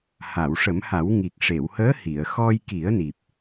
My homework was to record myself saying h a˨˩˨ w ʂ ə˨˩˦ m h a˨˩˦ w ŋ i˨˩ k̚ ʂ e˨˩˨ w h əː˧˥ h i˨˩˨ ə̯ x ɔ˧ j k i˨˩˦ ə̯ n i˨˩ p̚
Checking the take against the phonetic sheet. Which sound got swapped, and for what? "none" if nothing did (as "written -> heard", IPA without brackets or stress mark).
none